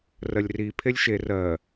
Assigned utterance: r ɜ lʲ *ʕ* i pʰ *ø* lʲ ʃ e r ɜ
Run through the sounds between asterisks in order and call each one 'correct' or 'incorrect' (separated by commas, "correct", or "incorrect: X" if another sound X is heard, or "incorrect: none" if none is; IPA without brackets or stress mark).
incorrect: r, incorrect: e